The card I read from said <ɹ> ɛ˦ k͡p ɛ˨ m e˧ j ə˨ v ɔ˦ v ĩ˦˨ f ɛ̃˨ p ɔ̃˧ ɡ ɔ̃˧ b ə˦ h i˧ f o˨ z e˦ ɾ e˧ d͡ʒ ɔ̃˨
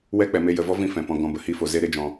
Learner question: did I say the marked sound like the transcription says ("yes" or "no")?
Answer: no